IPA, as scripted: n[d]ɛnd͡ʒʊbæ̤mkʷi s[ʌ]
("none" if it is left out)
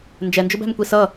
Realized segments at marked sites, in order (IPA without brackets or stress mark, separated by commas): d͡ʒ, ʌ